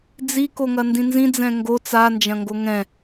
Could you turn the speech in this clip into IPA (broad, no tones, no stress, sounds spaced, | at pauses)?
d͡z i k o ŋ ɐ n d ĩ n z ĩ d͡z ɛ̃ ŋ ɡ o t͡s a n d͡ʒ ɐ̃ ŋ ɡ o ŋ ɛ̃